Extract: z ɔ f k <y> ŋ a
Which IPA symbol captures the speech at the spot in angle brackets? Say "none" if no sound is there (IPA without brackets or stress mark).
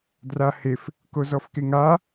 e